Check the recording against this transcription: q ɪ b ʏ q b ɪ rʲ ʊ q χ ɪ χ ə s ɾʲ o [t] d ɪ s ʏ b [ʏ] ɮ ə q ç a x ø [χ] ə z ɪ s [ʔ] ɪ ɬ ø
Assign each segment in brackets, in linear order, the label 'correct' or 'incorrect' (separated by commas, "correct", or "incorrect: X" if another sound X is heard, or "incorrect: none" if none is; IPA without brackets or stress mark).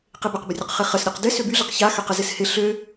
incorrect: q, incorrect: y, incorrect: q, incorrect: h